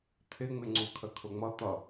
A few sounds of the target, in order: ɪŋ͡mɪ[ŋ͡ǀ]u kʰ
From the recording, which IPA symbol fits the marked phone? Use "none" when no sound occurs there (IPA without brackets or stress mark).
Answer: ŋ͡ǀ